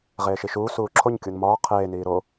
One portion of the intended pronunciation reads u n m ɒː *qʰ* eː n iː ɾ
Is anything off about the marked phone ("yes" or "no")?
no